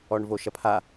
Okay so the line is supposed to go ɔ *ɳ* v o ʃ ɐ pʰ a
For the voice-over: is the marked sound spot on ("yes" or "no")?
yes